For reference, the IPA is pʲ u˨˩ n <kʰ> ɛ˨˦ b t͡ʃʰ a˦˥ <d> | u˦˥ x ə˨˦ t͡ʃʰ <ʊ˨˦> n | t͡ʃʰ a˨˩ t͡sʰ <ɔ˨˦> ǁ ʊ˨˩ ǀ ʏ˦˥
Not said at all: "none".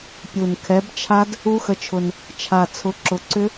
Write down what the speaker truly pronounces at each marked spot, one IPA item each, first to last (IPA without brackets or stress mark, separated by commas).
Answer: kʰ, d, ʊ˨˩, ʊ˨˦